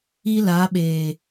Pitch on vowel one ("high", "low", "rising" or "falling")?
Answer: high